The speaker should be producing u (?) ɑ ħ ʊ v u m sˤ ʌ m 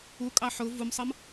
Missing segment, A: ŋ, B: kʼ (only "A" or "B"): B